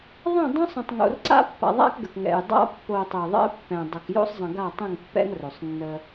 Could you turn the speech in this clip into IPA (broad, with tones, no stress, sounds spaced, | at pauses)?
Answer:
ðˤ ɛ̃˦˨ dˤ õ˦ sˤ ə̃˨ tˤ ŋ o̰˨ r ǀ a̰˦ pː a̰˨ ðˤ a̰˦ k ɡ ə˨ k ŋ ɛ̰˨ j dˤ a̰˦ pː o˨ tˤ ə˨ j ðˤ ɛ̰˦ pː ɛ̃˨ dˤ ə˨ k j o̰˦ sˤ zˤ ə̃˨ ɡ a˦˨ tˤ ə̃˦˨ ŋ pː ɛ̰˦ ŋ r o˨ sˤ nː ə˦